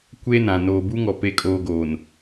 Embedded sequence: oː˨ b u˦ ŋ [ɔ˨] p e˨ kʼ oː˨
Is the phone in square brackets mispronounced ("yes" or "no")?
no